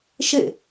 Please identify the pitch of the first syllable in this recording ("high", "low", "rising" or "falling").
falling